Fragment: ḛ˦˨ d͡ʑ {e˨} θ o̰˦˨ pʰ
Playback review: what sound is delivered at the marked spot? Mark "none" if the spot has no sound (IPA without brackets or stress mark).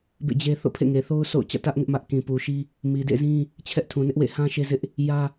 e˦